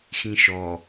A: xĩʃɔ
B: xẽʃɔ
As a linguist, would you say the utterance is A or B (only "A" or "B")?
A